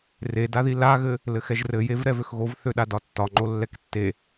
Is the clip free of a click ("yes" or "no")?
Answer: no